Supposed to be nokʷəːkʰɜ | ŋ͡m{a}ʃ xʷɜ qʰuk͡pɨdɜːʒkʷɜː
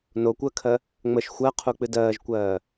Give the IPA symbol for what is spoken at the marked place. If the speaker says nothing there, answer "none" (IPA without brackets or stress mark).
ə